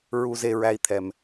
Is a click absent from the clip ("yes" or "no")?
yes